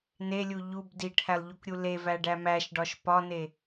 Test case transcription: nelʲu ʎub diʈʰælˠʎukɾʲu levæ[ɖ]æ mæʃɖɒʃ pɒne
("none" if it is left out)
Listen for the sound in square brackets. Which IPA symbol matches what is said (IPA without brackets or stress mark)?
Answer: ɖ